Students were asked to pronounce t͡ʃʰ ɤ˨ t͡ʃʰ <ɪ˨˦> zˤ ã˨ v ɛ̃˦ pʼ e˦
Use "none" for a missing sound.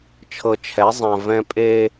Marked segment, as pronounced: ɛ˨˦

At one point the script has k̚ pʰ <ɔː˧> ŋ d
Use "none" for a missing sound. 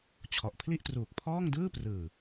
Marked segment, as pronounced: ɔː˥˩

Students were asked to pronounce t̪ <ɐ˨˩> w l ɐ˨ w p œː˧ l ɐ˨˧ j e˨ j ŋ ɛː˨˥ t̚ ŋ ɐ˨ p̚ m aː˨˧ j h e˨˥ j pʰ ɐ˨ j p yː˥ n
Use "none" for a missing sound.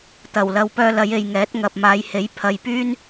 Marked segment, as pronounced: ɐ˨˩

